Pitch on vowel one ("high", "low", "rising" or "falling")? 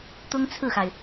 high